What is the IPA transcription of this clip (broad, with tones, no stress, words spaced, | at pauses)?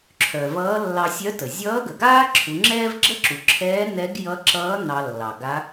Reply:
ǁʰœ˩vʌː˧˥ lːɑ˧sʲœ˧˥tə˩ zʲʌː˧˥ɡə˩ɡaː˥ ǁʰu˩˧ŋ͡ǁɛː˥v ɡ͡ǁə˥ǁu˩ǁʰɛː˧˥ nɛ˧˥ɡjʌ˧˥ǁʌː˧˥ nɑ˧lːɑ˩ɡa˧˥